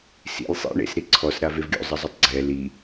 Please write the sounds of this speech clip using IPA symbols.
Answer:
s ḭ lʲ sˤ ḭ ɳ ḛ s ɾ i ǀʰ ɔ s ɾ a v e v ɡʲ o̰ zˤ ə zˤ u tˤ ɡ͡ǀ ɛ l i

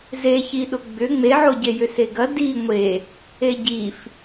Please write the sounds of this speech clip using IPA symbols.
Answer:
z e ç i ɗ ʊ ɡ͡b ʏ ŋ͡m e ʕ o ɟ e j ʏ s e ɡ ɐ d i ŋʷ e | e ɟ i f

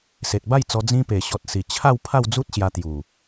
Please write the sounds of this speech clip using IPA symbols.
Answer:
s e˨ t̚ b a˥˧ j t͡s ɔ˧ d͡z ĩ˧ p e˨˩ ɕ ɔ˨ t̚ s i˨˩ t͡ɕʰ a˥˧ w pʰ a˥˧ w d͡z u˦ t̚ ɕ j a˧ t̪ j u˨˩

